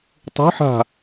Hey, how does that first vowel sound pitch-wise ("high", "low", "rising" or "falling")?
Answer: rising